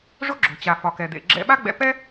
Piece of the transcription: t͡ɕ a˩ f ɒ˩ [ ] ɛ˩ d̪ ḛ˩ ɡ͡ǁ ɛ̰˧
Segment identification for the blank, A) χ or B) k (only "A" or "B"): B